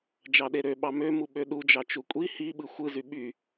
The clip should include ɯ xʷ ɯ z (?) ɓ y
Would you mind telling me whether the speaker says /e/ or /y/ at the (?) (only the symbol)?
y